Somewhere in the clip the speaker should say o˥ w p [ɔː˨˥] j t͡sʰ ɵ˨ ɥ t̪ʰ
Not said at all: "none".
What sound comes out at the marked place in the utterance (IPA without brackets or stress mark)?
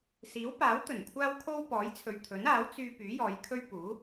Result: ɔː˨˥